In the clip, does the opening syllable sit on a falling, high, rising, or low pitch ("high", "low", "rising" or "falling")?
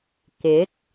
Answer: rising